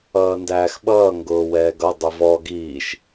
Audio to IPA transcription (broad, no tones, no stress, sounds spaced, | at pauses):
ʌː n d æː x ɓ ʌː ŋ ɡ ʊː w ɛː ɡ ʌ dˤ ʊ v ɔ ɡ iː ʃ